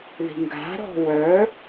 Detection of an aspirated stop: absent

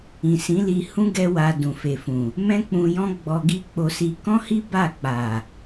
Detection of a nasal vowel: present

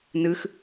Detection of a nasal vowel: absent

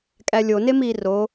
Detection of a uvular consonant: absent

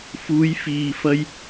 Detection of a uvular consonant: absent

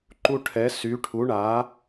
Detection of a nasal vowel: absent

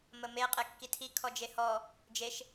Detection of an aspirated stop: present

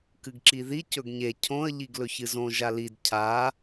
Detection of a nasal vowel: present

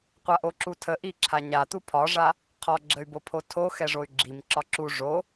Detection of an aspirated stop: present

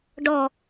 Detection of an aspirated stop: absent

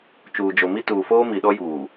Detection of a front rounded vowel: absent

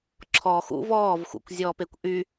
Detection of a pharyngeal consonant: absent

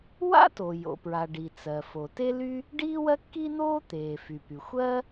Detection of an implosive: absent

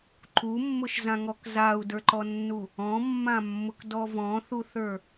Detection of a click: present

